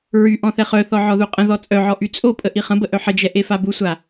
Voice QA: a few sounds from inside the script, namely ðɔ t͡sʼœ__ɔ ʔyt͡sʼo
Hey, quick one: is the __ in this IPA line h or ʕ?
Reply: ʕ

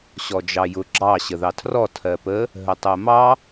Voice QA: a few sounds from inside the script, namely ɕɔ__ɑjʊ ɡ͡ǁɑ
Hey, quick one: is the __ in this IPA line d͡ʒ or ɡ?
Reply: d͡ʒ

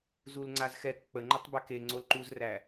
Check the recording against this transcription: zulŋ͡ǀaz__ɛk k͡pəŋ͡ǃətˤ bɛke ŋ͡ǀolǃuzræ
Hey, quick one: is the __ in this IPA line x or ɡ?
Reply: x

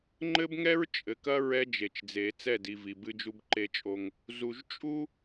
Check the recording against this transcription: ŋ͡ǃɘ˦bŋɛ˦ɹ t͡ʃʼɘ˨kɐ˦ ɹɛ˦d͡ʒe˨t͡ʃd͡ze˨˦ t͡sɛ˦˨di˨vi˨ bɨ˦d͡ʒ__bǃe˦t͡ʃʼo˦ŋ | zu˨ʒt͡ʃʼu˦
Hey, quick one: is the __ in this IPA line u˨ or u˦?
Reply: u˦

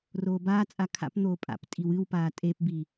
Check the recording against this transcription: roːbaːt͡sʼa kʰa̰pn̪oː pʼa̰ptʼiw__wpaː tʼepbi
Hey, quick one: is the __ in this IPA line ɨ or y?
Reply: ɨ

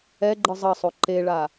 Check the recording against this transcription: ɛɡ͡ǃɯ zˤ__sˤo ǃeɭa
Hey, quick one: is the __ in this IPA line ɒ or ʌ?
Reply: ʌ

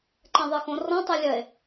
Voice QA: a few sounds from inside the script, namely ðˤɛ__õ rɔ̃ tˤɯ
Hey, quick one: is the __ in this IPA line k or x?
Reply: x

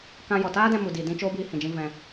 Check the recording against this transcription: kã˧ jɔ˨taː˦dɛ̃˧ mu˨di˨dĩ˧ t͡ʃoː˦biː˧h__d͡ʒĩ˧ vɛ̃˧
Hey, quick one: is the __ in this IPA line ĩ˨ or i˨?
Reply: ĩ˨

